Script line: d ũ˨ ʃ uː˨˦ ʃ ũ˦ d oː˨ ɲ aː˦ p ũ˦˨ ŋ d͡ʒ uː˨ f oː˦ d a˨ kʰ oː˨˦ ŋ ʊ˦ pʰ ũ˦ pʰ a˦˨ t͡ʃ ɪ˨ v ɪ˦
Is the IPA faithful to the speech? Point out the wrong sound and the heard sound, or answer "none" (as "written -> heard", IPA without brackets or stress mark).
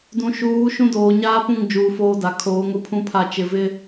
none